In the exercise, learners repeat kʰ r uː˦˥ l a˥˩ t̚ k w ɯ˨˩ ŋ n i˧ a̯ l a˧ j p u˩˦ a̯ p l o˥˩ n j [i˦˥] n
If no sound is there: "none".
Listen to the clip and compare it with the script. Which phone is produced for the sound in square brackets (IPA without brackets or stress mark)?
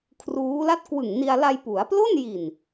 i˨˩